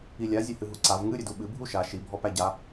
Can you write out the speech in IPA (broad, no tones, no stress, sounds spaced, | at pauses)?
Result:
i lʲ a zʲ ɛ h ɨ ɦ u ǀ a v ŋ ɨ ɾʲ ɨ d u ɓ ɨ bʱ u ʃ a ʃ i bʱ ɔ p æ ɟ a